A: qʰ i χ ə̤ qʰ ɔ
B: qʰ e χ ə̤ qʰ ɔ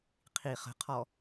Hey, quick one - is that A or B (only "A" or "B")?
A